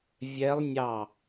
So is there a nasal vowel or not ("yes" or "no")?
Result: no